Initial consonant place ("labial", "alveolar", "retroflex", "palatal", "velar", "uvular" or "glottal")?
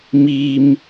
labial